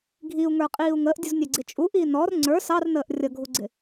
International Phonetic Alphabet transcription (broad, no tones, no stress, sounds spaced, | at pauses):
ɡʱ i u̯ ŋ ə˞ qʼ iː u̯ ŋ əː ʔ dʲ u z nʲ ɛ ɡ͡ǀ ɪ t͡ʃʼ u ʔ iː n ɔ r ŋ͡ǀ ə˞ s ɑ r n əː ʔ rʲ ʌ ɡʱ u ɡ͡ǀ ɪ